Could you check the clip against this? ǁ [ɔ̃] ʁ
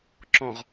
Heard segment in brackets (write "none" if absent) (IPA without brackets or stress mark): ɔ̃